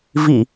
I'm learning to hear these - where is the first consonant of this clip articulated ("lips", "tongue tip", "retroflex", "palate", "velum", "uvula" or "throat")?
lips